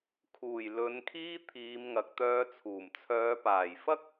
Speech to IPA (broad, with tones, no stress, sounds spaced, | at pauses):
kʰ uː˨˩ j l ɵ˨˧ n kʰ iː˥ t̪ʰ iː˨˧ m ŋ ɐ˨ k̚ t̪ œː˧ t͡sʰ uː˨˩ m t͡sʰ œː˨˧ p aː˨˩ j f ɐ˥ k̚